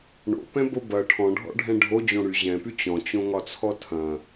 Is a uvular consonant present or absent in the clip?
absent